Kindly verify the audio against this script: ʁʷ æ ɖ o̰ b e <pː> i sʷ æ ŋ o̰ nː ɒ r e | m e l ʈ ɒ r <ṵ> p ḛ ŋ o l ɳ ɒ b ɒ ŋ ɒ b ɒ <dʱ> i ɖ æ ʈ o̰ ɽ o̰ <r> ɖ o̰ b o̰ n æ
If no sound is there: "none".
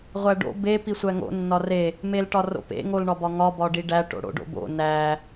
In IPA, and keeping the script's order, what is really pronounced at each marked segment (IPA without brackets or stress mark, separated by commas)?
p, o̰, ɖ, none